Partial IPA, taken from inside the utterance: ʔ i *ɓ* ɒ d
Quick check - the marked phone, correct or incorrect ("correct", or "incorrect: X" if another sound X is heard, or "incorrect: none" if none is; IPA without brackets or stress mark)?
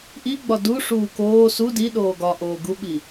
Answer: incorrect: ɡ͡b